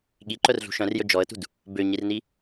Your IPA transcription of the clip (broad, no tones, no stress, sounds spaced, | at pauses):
ɠ i ǃ œ r ɮ ṳ ʃ œ̃ r j ɵ d͡ʒ ɔ ə̯ t ṳ d | b ø ɲ i r n i